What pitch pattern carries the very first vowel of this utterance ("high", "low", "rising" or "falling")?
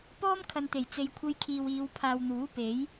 high